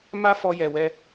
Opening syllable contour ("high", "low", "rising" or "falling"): high